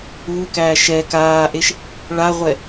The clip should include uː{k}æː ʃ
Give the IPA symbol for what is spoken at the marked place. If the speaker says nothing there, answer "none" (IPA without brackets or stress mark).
k